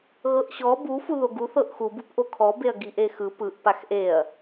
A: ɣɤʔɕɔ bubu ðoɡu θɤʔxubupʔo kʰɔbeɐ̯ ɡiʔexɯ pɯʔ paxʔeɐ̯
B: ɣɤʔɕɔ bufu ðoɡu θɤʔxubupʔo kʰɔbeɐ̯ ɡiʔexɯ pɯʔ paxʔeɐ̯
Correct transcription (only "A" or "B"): B